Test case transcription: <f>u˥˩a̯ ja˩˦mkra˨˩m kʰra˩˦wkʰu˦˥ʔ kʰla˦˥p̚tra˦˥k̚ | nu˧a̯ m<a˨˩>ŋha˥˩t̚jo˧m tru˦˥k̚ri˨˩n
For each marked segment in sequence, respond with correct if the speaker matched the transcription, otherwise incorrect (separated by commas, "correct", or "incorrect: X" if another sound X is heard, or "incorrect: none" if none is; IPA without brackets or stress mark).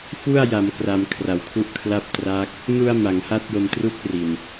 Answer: correct, incorrect: a˩˦